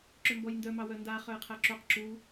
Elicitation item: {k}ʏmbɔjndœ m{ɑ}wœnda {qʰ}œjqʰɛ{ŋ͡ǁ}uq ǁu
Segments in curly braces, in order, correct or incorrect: incorrect, correct, incorrect, incorrect

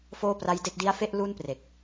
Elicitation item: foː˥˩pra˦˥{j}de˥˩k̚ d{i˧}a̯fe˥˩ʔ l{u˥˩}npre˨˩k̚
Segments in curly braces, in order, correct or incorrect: correct, incorrect, correct

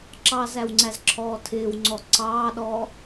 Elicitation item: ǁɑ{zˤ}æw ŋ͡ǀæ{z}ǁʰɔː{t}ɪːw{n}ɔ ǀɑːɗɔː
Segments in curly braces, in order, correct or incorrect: incorrect, correct, incorrect, incorrect

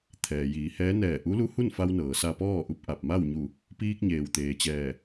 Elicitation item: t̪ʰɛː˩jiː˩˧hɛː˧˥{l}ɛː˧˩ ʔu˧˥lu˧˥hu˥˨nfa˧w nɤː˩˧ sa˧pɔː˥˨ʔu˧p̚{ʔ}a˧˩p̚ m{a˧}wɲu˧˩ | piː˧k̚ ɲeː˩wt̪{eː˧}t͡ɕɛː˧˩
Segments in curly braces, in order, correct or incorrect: incorrect, correct, incorrect, incorrect

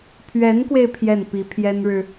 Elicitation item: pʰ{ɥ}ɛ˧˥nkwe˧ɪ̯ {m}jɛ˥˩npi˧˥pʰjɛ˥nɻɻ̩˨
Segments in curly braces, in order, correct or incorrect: correct, incorrect

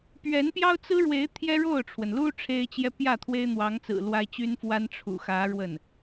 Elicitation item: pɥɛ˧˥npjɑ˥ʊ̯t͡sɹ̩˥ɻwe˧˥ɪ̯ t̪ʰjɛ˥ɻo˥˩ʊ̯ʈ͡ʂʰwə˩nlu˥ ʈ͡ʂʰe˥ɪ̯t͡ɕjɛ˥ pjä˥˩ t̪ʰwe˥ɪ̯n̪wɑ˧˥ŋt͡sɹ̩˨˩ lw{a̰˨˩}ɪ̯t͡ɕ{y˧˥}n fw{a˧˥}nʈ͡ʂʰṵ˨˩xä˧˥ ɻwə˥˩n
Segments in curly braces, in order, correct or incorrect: incorrect, incorrect, incorrect

